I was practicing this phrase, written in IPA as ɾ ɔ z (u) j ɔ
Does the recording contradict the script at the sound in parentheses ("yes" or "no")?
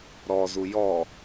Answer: no